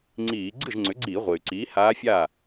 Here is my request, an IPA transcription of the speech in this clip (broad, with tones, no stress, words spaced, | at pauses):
ŋ͡ǀiː˧˩˧ ɡ͡ǀɨ˥˩ʒŋ͡ǀʏ˩˥ɡ͡ǀiː˧˩˧ ʁʷe˩y̯ǀiː˩˥ haː˧˥fʲa˥˩